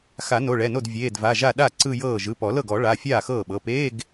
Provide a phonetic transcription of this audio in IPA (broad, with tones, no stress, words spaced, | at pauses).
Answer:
xa˨˩˦ no˩˧˩ɭɛ˩˧˩no˥˩d vʲeː˩˧˩dva˩˧˩ʒa˥˩ ɗa˥˩ ǀɯ˥˧jɤː˥˩ ʒɯ˩˧˩pɔ˨˩˦lɤ˥˩ɡ ɔ˨˩˦ ɭa˩˧˩fʲaː˥˩ xɤː˥˩ɓɤ˩˧˩ peː˧˥˧ɡ